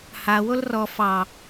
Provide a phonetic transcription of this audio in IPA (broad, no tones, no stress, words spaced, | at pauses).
hawol rɔ fɑ